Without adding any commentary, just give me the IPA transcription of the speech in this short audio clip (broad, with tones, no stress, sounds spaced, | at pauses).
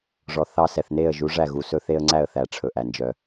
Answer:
ʐ ɔ˨ θ ɑ˦ s ɛ˨ θ n e˦˨ ə̯ ʒ u˨˦ ʐ æ˦˨ ɣ u˨ s ɵ˦ θ e˦ ə̯ ŋ͡ǀ æ˦˨ ə̯ θ æ˨ ʈ͡ʂʰ ɵ˨ ʔ æ˨ n d͡ʒ œ˦